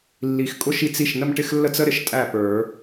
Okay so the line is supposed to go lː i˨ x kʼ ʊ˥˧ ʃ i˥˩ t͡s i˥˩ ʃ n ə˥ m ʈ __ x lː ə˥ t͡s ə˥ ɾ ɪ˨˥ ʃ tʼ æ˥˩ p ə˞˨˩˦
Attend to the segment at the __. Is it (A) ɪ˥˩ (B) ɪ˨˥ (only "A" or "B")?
A